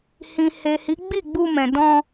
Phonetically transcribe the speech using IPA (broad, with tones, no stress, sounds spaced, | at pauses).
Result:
h ĩ˨ h e˨ h i˨˦ ɡ͡b i˦˨ ɡ͡b u˧ m ɛ̃˨ d ɔ̃˧